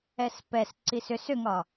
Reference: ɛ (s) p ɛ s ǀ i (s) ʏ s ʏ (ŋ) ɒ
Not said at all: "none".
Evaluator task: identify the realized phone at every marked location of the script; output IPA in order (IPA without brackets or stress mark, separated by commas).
s, s, ŋ